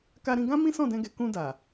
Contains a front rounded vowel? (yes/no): no